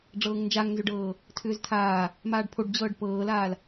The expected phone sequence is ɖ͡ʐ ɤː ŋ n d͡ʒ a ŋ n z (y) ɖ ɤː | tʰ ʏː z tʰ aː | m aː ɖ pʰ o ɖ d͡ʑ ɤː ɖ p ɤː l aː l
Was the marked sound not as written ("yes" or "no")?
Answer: yes